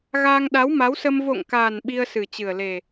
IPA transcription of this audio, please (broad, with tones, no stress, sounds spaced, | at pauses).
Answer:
ɣ aː˧ ŋ ɗ a˨˦ w m a˨˦ w s ə˧ m v o̰˧˨ ŋ k aː˨˩ n ɓ i˧ ə̯ s ɨ˨˩ t͡ɕ ɨ˨˩ ə̯ l e˨˩